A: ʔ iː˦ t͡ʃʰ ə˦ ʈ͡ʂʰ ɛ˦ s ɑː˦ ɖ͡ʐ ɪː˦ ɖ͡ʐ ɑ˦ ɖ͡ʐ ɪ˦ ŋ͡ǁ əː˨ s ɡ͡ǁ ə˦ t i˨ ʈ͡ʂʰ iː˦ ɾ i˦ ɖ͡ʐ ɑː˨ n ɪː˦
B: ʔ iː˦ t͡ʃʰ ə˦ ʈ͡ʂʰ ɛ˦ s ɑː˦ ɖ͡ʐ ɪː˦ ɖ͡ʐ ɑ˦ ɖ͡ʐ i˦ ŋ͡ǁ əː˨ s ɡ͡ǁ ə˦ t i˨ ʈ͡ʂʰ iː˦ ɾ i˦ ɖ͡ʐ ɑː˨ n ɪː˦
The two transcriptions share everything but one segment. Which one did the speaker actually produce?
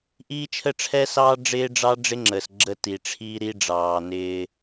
A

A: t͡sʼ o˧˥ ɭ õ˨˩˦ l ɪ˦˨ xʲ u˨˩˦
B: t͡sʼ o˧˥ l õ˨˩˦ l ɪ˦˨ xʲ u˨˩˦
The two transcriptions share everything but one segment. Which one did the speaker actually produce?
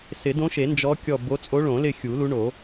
A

